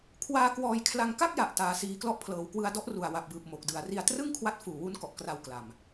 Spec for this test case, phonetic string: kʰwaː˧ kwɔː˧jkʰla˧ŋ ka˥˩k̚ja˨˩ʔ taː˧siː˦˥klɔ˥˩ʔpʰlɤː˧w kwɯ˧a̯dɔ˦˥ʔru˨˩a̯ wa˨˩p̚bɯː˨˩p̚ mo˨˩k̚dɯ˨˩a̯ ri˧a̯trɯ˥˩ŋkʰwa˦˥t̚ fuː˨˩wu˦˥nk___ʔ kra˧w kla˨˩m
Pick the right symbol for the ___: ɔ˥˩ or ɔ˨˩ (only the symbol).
ɔ˨˩